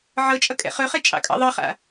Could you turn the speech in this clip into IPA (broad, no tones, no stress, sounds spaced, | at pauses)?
ʕ ɤ t͡ʃʼ ʌ kʼ ɛ̰ χ ɵ χ ɛ t͡ʃʼ ɑ̰ kʼ ɑ̰ ðˤ ɤ χ a̰